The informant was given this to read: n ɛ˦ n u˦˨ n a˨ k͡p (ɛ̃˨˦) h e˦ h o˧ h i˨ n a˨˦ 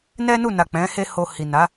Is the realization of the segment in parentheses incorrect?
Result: no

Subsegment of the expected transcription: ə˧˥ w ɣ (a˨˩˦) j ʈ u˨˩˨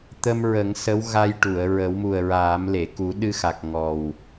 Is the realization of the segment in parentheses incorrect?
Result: yes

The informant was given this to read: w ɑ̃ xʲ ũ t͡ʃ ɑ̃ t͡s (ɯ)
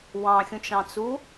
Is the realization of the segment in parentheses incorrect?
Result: yes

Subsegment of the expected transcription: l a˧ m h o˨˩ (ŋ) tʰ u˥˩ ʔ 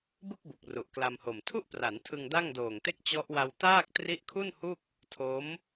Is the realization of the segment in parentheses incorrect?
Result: yes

